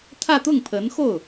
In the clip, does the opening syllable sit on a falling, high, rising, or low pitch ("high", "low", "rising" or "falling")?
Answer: falling